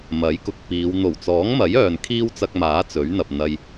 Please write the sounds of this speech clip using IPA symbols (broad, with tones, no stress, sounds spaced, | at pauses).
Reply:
m ɐ˨˥ j k ʊ˧ k̚ p iː˨˧ w n̪ o˨˩ w t͡s ɔː˨˥ ŋ m ɐ˨˥ j œː˨ n kʰ iː˥ w t͡s ɐ˧ k̚ m aː˨˥ t͡s ɵ˨˥ ɥ n̪ ɐ˨ p̚ n̪ ɐ˧ j